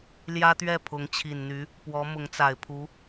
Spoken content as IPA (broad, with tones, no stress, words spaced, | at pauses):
ljä˥t̪ɥɛ˥˩ pʰʊ˧˥ŋt͡ɕʰi˨˩nn̪y˧˥ | pwɔ˧˥ mʊ˧˥ŋt͡sa˨˩ɪ̯pʰu˧˥